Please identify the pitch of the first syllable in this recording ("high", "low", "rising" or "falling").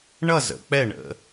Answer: falling